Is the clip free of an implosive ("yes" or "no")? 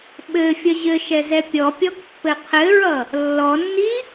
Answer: no